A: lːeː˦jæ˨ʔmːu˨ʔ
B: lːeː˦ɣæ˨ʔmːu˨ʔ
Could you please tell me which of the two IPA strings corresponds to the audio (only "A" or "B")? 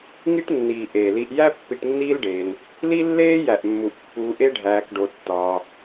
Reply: A